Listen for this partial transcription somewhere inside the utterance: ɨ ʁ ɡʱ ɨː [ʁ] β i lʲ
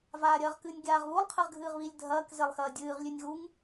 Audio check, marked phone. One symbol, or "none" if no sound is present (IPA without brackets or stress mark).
ʁ